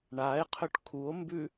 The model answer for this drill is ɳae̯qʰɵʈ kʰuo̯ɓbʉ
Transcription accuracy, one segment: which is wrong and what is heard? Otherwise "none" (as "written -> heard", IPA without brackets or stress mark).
ɓ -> m